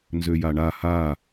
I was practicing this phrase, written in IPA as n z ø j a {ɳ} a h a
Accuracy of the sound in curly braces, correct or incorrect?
correct